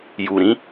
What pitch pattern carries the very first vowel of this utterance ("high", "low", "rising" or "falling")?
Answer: low